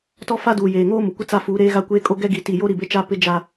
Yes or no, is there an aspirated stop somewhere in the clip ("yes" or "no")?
no